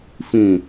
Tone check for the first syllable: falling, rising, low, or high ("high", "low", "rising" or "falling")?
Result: low